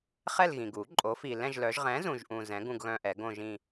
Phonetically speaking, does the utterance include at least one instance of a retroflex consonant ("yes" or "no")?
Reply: no